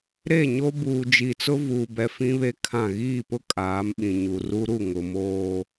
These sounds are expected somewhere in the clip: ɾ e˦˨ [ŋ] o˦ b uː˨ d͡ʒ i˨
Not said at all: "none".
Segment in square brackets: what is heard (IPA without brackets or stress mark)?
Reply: ɲ